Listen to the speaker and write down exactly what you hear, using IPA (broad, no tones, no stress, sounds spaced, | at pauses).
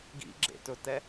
ɡ ḭ ɡ͡ǁ ḛ t ɵ t ɛ